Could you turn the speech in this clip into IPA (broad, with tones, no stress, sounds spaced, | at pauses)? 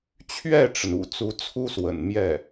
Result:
t͡ɕʰ ɥ ɛ˥˩ ʈ͡ʂ ə˩ n ṵ˨˩ t͡s u˧˥ t͡sʰ u˥ s w ə̰˨˩ n m j ɛ˥˩